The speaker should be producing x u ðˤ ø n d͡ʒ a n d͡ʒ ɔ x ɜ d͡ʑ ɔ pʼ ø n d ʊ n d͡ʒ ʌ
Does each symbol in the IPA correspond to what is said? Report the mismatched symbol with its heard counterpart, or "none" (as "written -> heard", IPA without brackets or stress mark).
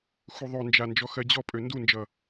ʊ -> u